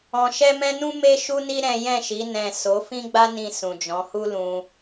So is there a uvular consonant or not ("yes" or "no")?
no